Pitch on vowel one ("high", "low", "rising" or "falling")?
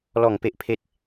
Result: falling